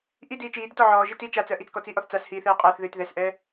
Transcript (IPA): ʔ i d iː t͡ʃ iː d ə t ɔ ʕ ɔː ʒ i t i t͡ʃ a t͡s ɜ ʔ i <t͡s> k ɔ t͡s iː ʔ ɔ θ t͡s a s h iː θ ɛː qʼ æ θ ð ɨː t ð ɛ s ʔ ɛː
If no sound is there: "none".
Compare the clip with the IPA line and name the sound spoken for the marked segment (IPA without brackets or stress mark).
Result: t͡s